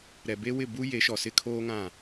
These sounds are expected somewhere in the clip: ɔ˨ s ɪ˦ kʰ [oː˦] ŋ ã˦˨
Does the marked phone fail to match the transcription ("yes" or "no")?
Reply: no